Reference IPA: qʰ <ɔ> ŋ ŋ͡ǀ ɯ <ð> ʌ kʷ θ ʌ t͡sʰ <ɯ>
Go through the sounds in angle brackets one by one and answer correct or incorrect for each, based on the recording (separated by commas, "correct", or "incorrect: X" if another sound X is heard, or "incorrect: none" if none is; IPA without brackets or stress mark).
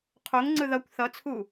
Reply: incorrect: o, correct, incorrect: u